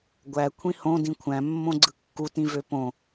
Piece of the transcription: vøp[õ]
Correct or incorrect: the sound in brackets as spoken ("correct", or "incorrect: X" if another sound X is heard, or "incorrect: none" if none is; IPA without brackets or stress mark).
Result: correct